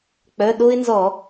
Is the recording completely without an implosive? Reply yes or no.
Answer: no